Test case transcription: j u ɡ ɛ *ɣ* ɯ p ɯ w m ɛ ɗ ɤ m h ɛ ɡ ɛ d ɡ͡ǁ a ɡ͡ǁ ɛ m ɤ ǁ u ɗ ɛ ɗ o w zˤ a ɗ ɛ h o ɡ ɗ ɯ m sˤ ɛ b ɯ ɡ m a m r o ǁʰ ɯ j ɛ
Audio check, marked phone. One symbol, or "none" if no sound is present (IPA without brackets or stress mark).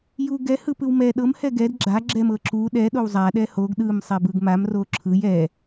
h